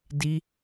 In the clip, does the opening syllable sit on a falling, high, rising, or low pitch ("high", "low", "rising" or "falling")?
high